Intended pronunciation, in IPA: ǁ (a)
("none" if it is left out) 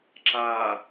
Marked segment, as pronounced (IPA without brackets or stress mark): a